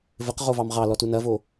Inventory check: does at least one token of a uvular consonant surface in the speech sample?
yes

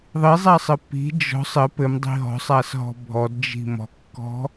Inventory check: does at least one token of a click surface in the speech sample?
no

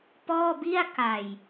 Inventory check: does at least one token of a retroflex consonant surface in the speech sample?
no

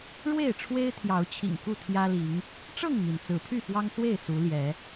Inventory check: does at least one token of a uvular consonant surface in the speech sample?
no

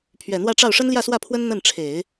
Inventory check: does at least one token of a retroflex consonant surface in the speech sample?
yes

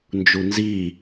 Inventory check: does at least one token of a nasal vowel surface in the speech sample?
no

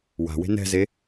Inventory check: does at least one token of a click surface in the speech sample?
no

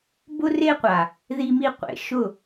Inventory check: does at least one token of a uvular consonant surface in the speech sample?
yes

